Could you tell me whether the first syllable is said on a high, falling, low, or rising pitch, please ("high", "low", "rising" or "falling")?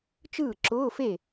falling